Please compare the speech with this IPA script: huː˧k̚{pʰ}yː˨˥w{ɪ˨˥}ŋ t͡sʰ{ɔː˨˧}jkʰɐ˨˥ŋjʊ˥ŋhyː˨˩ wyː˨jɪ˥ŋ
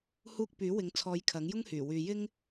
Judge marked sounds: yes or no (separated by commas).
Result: no, yes, yes